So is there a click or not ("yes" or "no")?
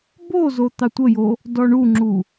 yes